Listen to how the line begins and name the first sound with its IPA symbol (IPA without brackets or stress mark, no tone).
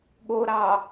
ɠ